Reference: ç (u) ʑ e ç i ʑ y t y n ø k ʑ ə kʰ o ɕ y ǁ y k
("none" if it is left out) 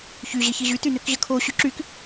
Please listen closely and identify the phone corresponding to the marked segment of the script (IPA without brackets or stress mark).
y